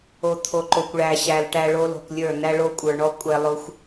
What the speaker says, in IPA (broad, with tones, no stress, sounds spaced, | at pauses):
o˨ t̪ʰ o˨ ǃ o˨ kʷ ɭ æ˨ ɕ æ˨ l ʈ æ˨ ɭ o˧ l o̤˨ k lʲ ə˞˦˨ n æ˧ ɭ o˧ kʷʼ ə˞˨ ɳ ɔ˧ kʷʼ ɛ˧ lˠ o˦ xʷ